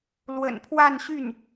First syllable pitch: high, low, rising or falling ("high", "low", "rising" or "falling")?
low